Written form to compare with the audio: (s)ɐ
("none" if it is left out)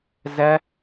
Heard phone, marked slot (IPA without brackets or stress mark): z